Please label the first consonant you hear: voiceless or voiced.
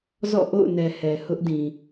voiced